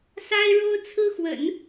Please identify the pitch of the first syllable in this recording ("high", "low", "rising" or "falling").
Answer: high